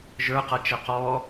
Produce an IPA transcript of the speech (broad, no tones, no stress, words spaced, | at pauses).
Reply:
ʒə˞ qʌt͡ʃɛqɔ